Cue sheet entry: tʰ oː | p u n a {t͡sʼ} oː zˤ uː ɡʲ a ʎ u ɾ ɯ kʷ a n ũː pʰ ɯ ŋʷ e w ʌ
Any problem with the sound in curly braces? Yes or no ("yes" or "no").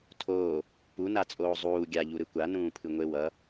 no